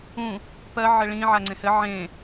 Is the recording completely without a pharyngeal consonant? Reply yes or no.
no